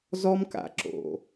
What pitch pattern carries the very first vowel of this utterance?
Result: high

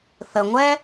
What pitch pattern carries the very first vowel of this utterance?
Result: low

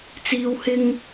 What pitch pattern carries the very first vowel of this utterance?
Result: high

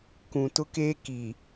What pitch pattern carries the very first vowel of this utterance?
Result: low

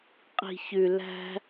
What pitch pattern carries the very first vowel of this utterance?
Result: low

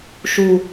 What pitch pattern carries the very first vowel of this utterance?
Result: low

